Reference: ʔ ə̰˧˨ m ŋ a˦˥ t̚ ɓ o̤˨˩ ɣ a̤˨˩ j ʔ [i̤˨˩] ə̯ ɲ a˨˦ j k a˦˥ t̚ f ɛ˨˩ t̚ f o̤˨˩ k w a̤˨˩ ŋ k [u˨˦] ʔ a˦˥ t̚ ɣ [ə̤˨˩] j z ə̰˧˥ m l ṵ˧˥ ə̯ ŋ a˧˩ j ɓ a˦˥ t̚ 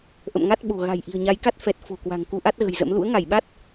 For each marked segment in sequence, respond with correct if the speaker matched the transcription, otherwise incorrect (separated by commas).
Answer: correct, correct, correct